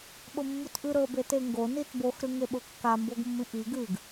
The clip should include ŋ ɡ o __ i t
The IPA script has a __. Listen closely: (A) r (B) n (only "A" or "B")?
B